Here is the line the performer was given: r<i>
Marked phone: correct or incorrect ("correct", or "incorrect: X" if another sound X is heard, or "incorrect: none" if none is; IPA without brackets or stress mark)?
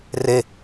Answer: incorrect: e